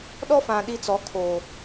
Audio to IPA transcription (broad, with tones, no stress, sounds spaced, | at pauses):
ɗ ɔ˦ f ã˨ ɗ i˦ t͡s ɔ˨˦ kʰ oː˨